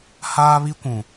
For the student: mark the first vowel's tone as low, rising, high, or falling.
high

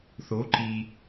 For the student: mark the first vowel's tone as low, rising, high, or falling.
rising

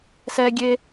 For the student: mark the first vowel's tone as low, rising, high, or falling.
high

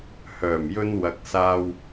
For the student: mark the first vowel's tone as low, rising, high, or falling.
low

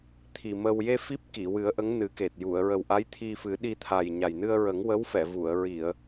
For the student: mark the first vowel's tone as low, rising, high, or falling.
low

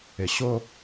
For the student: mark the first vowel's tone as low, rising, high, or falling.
low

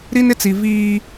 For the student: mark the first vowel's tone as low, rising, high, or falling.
high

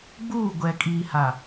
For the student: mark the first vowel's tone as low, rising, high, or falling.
falling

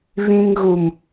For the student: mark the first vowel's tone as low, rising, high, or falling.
high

